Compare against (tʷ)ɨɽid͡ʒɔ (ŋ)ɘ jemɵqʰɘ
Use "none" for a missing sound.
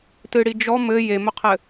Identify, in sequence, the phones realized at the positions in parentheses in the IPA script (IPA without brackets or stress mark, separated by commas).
t, m